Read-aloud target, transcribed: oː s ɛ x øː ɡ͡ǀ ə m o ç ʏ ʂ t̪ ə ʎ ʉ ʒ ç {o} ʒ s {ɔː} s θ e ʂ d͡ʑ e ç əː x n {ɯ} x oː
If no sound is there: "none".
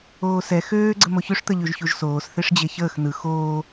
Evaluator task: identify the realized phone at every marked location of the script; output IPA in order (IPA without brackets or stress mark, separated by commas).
u, oː, ɯ